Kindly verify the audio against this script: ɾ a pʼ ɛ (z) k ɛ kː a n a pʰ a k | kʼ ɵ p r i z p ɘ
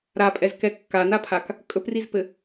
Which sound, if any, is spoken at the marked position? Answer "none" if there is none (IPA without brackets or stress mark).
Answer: z